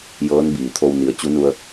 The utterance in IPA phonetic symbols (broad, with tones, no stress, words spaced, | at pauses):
jɤː˧˥nbiː˩t̪ʰo˧w ni˩˧ə̯ t͡ɕu˧˥nu˧ə̯